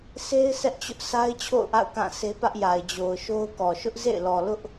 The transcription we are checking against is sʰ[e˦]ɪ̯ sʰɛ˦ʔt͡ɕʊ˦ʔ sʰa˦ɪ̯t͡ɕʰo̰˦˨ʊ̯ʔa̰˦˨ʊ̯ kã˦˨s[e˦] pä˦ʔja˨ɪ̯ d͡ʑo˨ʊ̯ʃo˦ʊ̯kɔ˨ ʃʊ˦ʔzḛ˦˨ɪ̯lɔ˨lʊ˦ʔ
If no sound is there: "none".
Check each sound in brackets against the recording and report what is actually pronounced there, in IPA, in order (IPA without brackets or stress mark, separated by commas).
e˦, e˦